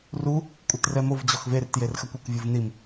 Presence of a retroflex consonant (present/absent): absent